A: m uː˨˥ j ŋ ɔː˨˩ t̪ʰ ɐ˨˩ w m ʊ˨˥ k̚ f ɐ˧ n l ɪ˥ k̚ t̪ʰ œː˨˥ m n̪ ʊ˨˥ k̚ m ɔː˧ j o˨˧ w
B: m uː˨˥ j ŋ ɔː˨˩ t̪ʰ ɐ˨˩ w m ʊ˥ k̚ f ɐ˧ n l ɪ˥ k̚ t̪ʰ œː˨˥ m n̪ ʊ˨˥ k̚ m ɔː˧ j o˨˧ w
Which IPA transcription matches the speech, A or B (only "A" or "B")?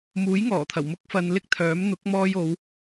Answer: B